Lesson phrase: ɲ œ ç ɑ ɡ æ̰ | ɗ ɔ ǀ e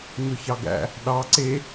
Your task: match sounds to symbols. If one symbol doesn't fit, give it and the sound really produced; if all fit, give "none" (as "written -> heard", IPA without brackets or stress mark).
ɔ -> ɑ